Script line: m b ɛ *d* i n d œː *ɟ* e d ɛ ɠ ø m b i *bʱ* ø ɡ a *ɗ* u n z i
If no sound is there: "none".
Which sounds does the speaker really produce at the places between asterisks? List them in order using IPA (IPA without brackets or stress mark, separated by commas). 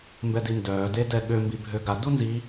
d, d, bʱ, d